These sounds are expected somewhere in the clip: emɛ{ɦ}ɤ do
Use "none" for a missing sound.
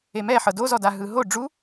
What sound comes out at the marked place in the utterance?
ħ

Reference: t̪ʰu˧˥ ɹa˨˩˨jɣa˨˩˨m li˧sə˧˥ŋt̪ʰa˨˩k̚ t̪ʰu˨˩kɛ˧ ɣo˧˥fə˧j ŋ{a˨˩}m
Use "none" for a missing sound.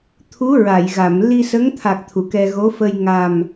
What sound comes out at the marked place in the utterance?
a˨˩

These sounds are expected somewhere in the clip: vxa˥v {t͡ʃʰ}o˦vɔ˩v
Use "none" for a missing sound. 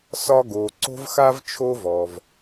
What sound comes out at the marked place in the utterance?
t͡ʃʰ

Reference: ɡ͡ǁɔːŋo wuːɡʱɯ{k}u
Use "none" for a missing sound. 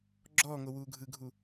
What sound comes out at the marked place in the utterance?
ɡʱ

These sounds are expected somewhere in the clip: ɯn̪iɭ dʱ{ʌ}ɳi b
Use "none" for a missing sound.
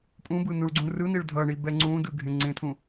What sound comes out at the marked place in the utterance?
ʌ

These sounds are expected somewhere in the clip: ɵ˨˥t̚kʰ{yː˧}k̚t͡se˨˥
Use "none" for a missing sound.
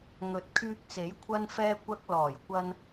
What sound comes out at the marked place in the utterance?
yː˧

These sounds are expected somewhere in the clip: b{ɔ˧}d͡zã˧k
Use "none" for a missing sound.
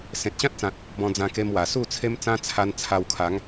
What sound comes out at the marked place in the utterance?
ɔ̃˧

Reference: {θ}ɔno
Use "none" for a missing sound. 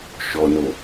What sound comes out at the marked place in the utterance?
ʃ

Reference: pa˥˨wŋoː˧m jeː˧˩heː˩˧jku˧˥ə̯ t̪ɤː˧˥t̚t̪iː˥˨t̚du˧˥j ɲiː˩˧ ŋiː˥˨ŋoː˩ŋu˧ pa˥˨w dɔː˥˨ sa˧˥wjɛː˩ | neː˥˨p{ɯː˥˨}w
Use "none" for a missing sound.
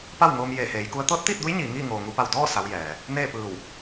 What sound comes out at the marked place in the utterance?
ɯː˧˩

